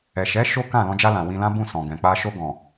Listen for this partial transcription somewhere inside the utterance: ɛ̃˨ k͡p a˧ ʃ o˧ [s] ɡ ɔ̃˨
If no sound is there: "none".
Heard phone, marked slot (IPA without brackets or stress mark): none